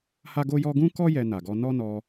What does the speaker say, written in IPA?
ha˦ɡo˦jɔ˦ ɡũ˦kɔ˦ jɛ˧na˨ɡɔ˧ nɔ˦ nɔ˧

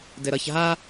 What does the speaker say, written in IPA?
dɘɾʌç ɦa

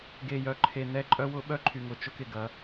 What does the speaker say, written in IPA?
ɡe˨jœ˨ǃʰe˨ nɛ˦ǃʼœ˦wʊ˦ ɓœ˦ǃʰy˨ŋʊ˨ t͡ʃʊ˦kɪ˨ɡɐ˨˦

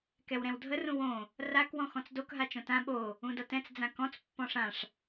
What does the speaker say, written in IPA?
kɛwɾɛ̃wdʱə rũwõ | rak wɔ̃xɔ̃t͡sdok ɦat͡ʃõtã ɓo | ũdʌtɛ̃t͡s d͡zãkɔ̃t͡s pːɔ̃ʂãʂ

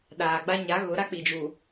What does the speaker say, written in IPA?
ɗaː˨ɡ͡ba˦ ɲa˨˦ɣʊ˨˦ ɾa˦k͡pi˨d͡ʒu˨

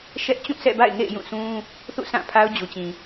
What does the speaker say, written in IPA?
ʃɛ˦ʔ t͡ɕũ˦˨sɛ̰˦˨ba̰˦˨ɪ̯ŋḛ˦˨ɪ̯ jũ˦˨sũ˦ | θṵ˦˨sã˦˨ pʰa˦ʊ̯d͡ʑu˨t͡ɕĩ˨

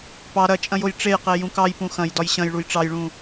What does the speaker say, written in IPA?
pɑ ɾɐt͡ʃʼɐ̃joj ʈ͡ʂejqe jũkɑj pũxɐ̃jdɒj ɕɐ̃jɭuj ʈ͡ʂɑjɭũ

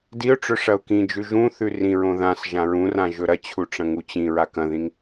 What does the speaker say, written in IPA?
diʊ̯ʈ͡ʂɵ ʂɐʊ̯kĩd͡ʒʉʒ ũθʉ rĩɹõ ðãs ʒãɹũrã ʒɵɾɐt͡ɕʰu ʈ͡ʂɐ̃ŋut͡ɕĩɹa kɐ̃ðĩŋ

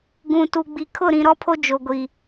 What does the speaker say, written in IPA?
ɡũ˨tu˨ɡ͡bi˨ kʰʊ˦˨ɾĩ˨ ɾɔ˦pʰo˦ d͡ʒo˨ɡʷi˨

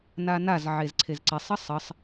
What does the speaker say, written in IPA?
nanaz ʕezǀʰezǀesˤ əsˤəsˤ

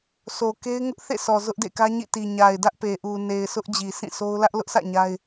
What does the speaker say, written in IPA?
sʰo˨ke˦ɪ̯ ŋʊ˦ʔ θḛ˦˨sʰɔ˨ zʊ˦ʔdḛ˦˨kä˦ɲḭ˦˨ ti˨ ɲa˨ɪ̯dä˦ʔ pe˨ʔu˨ ne˨ɪ̯sʰʊ˦ʔ d͡ʑi˨sʰĩ˦˨sʰo˦ʊ̯ lä˦ʔlʊ˦ʔsʰä̰˦˨ ɲa˦ɪ̯

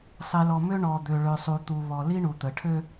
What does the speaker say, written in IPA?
sˤi˨lɔ˨mø˦ ɳɔ˨d̪ø˨ ɭø˨sˤu˨t̪u˨ βɔ˨ li˦ɳu˨t̪ə˨ʈʰø˦

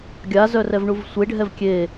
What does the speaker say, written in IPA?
ɡʲazœ rɛvɳuvsʷeɖʱɛv kʲe

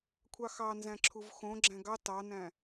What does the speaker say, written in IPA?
kʷʰɑxɑ nzæ̃ǁʰuvxõ ɡ͡ǁæ̃ɡɑ tɑnæ̃

